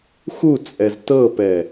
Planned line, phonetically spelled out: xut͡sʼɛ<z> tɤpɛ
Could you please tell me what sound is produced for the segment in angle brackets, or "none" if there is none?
z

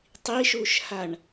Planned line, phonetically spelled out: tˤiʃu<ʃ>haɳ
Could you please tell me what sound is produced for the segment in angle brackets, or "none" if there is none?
ʃ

